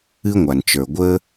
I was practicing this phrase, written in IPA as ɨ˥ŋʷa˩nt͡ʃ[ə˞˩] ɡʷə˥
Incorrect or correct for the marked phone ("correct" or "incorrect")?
correct